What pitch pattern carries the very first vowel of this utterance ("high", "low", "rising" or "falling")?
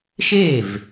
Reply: falling